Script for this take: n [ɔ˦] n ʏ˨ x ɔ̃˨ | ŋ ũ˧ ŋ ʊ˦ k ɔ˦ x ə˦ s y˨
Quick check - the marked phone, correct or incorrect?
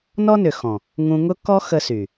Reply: correct